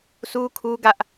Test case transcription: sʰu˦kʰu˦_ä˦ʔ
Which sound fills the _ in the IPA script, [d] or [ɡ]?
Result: ɡ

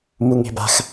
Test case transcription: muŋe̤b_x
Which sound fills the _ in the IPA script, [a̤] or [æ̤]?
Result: a̤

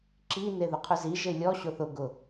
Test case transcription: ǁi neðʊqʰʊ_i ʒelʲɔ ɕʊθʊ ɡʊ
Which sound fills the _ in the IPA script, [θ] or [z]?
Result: z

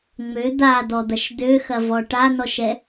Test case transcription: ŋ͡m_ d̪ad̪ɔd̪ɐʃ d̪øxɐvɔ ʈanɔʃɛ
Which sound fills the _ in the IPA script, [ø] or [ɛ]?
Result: ø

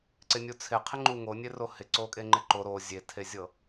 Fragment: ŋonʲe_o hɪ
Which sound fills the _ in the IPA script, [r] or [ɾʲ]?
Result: r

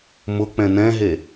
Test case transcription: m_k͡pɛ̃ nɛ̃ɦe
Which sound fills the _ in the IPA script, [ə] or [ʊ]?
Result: ʊ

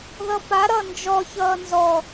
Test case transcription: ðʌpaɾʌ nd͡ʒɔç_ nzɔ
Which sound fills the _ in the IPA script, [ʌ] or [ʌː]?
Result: ʌː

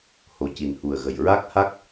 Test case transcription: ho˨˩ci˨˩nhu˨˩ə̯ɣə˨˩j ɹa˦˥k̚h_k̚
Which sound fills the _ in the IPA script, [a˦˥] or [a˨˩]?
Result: a˦˥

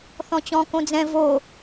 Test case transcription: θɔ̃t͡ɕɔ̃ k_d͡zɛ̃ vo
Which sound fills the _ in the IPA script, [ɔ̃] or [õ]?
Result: õ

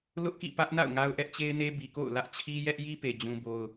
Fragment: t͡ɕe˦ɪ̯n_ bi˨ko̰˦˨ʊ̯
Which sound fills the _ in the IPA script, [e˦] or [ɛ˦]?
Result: e˦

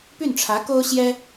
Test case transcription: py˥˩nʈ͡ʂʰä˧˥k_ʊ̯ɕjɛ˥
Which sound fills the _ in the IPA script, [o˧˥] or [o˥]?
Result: o˥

